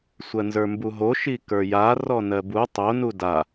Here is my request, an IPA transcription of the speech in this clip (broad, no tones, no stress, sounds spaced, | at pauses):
sʷ ɜ n z ə˞ m b u ɦ o ʃ i k ə˞ j a r ɔ n ɜ b u tˤ o n u d a